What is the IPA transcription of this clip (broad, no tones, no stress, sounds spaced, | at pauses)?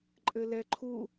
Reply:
ǃʼ ɘ l ɛ ǃʰ u